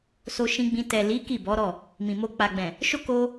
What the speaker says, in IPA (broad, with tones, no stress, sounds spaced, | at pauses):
s o˧ ʃ ĩ˧ ɡ͡b ĩ˧ t ɛ˨ l i˨˦ k i˦˨ b ɔ˨˦ ɾ ɔ˦˨ | m ĩ˨ m o˧ k͡p a˨ ɡ͡b ɛ̃˨ | ʃ o˦ k o˧